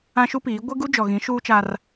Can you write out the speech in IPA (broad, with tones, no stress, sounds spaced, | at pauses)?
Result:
ã˦ ʃ u˦ p iː˨˦ ɡʷ e˦ ɡ u˦ d͡ʒ ɔ˨ ɣ ĩ˨˦ ʃ uː˦ t͡ʃ a˦ r